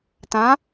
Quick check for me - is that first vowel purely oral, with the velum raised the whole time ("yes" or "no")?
no